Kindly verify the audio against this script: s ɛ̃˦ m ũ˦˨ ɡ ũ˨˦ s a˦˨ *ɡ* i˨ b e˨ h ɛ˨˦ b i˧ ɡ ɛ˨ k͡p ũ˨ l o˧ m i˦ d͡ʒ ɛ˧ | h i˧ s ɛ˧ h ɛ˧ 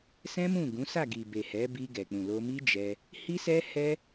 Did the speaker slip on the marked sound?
no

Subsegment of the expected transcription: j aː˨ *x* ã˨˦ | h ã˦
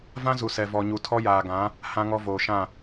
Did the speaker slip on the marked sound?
yes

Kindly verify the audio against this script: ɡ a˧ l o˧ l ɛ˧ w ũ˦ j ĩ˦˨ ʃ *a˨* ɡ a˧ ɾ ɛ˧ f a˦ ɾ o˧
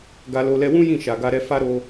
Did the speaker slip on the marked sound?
no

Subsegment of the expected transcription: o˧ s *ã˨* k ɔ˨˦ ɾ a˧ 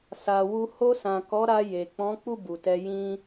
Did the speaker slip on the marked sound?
no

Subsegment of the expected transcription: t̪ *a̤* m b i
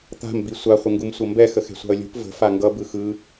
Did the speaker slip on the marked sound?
no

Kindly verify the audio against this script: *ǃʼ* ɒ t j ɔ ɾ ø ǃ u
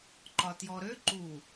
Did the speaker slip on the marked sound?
yes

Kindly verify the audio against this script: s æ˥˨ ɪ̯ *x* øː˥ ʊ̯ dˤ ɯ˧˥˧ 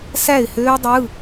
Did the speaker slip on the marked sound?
yes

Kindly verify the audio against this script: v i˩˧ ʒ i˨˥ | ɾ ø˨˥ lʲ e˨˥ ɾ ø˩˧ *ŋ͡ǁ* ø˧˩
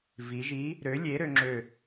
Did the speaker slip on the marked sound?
no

